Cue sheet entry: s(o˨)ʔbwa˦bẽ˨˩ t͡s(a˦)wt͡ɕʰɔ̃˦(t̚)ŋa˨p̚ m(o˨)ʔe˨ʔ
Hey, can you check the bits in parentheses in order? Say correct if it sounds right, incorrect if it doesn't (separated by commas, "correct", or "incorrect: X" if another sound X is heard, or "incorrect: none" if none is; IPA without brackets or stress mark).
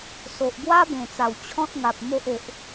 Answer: correct, incorrect: a˨˩, correct, incorrect: o˦